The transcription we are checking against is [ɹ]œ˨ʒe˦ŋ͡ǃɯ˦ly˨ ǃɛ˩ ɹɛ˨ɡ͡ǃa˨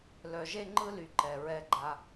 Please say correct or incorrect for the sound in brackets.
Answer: incorrect